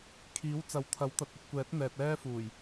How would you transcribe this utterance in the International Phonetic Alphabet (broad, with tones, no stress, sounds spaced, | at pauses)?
kʰ iː˨˥ w t͡s ɐ˨˥ w t̪ʰ ɐ˨˥ w t̪ ɐ˨ t̚ ɐ˨ p̚ kʷ ɛː˨˥ t̚ n̪ ɛː˨ t̚ ɛː˥ f uː˨˩ j